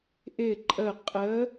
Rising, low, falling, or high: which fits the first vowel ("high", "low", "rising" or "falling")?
falling